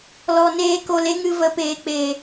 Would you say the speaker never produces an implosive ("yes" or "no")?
yes